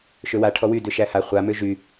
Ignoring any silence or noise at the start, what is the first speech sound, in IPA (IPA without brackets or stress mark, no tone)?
ʃ